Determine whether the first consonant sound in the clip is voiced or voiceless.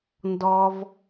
voiced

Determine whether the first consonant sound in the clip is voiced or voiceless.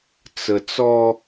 voiceless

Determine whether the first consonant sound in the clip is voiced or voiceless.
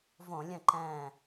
voiced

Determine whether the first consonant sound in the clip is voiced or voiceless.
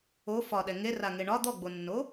voiceless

